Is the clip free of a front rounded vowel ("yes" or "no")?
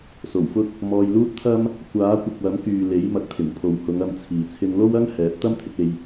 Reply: no